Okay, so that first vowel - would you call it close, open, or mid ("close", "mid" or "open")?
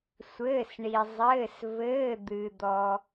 mid